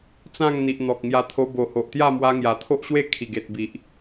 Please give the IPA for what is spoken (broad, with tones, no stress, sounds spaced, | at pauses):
t͡s ã˥˧ ŋ n̪ i˨ ʔ n̪ ɔ˨ k̚ ŋ j a˧ t̪ʰ o˧ b o˨˩ h o˨ ʔ t̪ j a˥˧ m w a˧ ŋ j a˨˩ t̪ʰ o˦ ʔ ɕ w e˥˧ kʰ i˨˩ ɡ e˨ t̚ b i˨ ʔ